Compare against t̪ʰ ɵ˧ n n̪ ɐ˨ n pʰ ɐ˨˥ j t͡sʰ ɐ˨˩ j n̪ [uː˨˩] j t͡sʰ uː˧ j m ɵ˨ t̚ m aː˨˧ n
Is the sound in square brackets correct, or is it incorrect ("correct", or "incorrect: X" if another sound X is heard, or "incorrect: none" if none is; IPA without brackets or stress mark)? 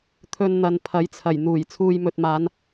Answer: correct